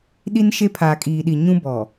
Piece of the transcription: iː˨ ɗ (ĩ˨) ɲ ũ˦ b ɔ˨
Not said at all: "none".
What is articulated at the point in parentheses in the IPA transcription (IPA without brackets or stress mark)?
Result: i˨